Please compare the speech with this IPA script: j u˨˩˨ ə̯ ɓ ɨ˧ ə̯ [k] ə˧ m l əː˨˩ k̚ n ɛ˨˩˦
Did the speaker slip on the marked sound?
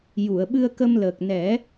no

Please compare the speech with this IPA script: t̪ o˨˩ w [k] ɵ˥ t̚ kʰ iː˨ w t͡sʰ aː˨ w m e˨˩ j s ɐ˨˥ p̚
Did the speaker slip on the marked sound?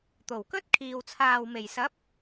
no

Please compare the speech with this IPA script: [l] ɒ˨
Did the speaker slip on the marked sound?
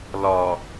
no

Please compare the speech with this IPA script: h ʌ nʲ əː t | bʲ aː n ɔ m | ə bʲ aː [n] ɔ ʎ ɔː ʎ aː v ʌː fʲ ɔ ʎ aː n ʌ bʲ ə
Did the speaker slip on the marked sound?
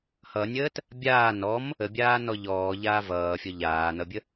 no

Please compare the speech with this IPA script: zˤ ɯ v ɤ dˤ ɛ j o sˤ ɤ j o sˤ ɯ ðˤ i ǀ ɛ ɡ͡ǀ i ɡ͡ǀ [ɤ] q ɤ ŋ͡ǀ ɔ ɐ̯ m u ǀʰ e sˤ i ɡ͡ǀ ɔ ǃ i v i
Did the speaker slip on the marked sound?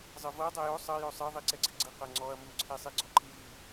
yes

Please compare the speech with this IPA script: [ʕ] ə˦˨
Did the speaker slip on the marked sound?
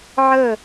no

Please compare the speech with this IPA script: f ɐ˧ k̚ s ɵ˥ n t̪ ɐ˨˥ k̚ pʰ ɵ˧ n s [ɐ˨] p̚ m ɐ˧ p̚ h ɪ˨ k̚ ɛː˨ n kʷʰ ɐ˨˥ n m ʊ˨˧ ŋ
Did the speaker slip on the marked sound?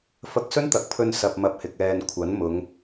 yes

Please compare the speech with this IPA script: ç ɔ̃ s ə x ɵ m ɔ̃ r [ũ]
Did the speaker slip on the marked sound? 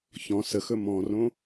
yes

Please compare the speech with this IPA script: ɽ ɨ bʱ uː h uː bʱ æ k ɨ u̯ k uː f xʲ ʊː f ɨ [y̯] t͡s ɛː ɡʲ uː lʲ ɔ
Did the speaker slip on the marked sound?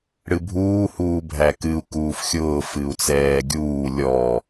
yes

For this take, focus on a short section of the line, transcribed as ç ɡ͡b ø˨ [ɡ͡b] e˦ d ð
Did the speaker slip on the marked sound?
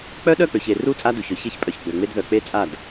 yes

